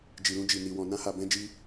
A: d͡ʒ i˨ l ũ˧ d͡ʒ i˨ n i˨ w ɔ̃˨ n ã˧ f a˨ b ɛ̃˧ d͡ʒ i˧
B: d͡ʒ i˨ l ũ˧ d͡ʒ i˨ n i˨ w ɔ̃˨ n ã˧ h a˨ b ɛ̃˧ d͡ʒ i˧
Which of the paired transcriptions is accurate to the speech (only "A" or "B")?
B